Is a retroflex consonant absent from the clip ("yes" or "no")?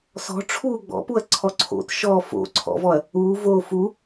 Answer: no